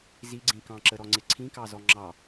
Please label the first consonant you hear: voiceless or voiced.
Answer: voiced